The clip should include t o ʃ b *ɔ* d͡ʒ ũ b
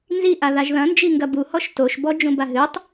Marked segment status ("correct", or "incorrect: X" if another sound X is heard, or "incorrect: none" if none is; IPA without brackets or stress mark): correct